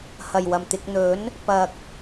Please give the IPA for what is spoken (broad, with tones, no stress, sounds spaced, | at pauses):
h ɐ˨˩ j w ɐ˨˩ m t̪ ɪ˨ k̚ n̪ ɵ˨˥ n | p ɐ˨ k̚